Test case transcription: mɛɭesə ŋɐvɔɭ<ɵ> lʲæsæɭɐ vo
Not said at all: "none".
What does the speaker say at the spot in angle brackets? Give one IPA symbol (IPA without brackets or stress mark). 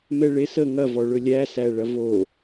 ɵ